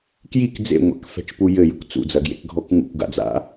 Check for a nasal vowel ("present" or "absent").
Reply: absent